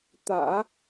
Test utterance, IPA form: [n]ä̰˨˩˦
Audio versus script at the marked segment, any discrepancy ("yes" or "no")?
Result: yes